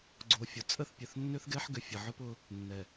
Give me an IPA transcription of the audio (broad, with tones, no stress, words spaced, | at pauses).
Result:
ɡ͡ǀo˨fʲʊ˨ t͡sʼə˦˨θpʲœ˨θnːʏ˦θɡɛ˦ħ ɡʏ˨fʲə˨ʕʊ˦pʊ˦ | nːɛ˨